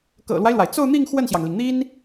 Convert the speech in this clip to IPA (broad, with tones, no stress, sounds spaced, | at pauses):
k ɤ̰˨˩ l w a˦ ɪ̯ l w a˩ ɪ̯ t͡s o˥˧ ʊ̯ n̪ i˥˧ ŋ x w ə˥˩ n ɕ j ɑ˩ ŋ l i˩ ŋ n̪ i˥ n